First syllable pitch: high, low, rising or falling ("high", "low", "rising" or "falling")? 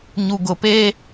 low